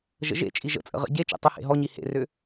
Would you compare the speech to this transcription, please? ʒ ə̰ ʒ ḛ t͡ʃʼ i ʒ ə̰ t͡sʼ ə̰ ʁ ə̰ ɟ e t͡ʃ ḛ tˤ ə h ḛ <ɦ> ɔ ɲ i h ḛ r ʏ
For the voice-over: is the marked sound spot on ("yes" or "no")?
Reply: yes